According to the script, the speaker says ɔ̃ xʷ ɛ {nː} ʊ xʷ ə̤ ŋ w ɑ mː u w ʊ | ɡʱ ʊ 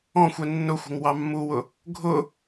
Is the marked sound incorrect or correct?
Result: correct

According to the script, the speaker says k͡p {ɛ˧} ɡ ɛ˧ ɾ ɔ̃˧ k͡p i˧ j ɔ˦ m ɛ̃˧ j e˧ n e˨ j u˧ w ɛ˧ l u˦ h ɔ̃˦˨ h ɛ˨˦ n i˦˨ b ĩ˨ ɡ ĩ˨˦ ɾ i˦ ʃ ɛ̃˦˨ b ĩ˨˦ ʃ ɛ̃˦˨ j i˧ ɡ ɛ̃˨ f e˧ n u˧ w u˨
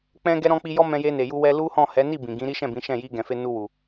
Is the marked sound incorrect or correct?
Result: incorrect: ɛ̃˧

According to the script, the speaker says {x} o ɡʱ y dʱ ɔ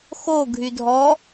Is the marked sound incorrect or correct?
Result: correct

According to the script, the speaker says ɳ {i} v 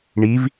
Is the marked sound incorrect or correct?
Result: correct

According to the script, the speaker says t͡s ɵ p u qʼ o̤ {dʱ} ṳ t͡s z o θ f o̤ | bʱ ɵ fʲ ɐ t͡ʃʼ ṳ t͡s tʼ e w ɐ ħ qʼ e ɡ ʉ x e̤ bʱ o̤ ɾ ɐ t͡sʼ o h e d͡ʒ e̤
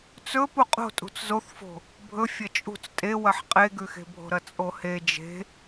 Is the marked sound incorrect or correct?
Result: incorrect: tʼ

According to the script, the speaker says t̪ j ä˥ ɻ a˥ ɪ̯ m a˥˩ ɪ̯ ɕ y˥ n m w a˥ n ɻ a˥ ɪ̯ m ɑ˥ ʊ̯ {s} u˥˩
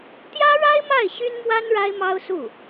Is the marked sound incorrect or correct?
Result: correct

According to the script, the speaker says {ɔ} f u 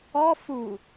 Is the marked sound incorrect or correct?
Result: correct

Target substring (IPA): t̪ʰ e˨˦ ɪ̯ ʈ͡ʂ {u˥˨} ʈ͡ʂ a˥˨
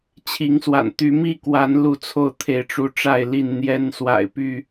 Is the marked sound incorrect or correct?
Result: incorrect: u˨˦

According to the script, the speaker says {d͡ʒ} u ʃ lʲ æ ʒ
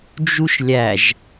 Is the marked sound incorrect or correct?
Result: correct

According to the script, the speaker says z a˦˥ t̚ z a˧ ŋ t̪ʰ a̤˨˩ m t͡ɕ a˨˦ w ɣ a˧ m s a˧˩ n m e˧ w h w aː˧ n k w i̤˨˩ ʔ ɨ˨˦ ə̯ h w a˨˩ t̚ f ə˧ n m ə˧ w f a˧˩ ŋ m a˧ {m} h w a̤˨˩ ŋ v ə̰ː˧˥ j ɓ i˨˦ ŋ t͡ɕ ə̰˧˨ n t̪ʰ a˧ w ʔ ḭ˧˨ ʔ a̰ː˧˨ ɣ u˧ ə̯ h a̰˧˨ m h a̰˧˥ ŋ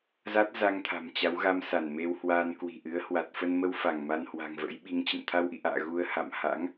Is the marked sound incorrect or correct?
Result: incorrect: n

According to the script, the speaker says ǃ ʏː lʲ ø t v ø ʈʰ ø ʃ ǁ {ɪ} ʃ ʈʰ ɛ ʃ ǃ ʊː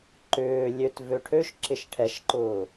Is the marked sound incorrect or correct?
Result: correct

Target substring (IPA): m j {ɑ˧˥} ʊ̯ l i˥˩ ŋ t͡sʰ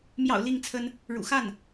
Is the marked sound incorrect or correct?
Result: incorrect: ɑ̰˨˩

